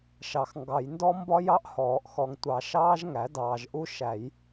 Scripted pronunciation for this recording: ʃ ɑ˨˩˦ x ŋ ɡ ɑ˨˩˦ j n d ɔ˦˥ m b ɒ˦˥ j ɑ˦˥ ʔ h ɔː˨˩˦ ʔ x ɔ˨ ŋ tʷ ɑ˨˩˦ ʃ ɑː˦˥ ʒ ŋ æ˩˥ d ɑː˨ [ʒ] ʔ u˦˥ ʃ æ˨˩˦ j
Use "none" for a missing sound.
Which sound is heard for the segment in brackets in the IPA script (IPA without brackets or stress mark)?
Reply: ʒ